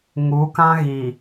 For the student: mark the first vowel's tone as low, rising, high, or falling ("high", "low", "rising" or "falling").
rising